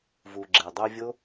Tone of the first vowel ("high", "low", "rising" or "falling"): low